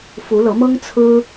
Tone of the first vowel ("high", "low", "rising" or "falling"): rising